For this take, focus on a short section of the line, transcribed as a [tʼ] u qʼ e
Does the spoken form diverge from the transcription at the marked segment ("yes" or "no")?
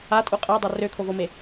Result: no